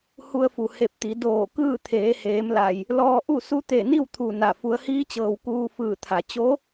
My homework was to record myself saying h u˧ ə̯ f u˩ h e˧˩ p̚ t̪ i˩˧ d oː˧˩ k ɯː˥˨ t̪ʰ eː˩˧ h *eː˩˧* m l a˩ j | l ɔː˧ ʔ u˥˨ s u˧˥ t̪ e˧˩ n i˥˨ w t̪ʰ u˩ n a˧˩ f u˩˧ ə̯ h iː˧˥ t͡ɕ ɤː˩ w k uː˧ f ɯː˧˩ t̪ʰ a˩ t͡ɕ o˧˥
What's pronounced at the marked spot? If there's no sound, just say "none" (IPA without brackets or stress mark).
eː˩˧